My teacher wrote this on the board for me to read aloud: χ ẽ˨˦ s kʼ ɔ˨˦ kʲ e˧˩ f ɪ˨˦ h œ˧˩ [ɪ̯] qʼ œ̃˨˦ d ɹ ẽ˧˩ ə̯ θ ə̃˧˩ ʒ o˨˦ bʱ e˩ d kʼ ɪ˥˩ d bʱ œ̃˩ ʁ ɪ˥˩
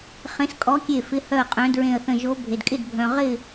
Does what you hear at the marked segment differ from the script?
yes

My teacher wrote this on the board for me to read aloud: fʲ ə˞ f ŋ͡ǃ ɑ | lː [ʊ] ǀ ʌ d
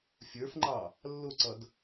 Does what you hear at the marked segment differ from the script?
no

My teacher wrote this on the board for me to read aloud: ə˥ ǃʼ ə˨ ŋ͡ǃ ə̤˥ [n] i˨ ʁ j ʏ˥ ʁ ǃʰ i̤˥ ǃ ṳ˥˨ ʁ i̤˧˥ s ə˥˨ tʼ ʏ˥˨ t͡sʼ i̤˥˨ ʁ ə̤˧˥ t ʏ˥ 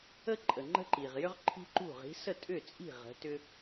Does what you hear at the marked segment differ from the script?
yes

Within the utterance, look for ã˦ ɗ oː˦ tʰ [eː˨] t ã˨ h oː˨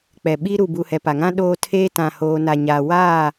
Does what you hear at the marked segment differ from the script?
yes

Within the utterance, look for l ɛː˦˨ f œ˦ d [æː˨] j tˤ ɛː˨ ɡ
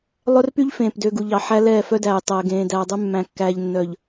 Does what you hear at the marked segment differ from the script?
no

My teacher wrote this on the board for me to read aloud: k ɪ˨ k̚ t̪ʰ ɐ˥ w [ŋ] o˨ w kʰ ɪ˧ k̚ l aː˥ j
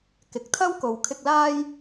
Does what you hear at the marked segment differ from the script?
yes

